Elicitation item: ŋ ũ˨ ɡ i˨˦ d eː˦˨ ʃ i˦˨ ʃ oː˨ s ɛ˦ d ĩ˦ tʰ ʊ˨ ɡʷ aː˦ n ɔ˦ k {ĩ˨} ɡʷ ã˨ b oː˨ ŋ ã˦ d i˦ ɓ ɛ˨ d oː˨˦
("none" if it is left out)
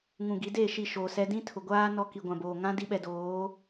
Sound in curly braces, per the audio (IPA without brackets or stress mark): i˨